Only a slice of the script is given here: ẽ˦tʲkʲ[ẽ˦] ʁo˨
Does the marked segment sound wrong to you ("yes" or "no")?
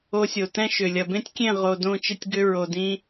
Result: yes